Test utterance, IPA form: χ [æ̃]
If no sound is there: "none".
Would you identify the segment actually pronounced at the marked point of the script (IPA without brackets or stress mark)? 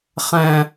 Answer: æ̃